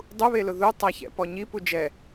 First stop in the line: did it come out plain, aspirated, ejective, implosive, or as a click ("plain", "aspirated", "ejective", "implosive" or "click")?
plain